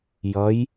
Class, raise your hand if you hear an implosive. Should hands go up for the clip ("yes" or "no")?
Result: no